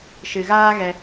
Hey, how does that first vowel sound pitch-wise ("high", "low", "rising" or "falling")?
low